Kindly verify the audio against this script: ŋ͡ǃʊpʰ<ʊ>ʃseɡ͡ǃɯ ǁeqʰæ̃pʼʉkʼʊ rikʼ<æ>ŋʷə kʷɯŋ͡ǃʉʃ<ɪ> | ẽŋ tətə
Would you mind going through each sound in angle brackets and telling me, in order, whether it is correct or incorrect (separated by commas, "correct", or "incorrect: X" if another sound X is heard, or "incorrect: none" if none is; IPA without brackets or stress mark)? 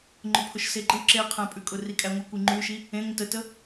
correct, correct, incorrect: i